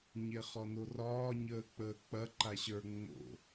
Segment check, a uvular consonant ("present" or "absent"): present